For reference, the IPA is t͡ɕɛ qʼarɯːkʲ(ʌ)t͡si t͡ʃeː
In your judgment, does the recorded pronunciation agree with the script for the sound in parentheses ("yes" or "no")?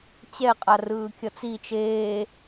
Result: yes